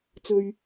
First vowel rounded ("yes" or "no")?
yes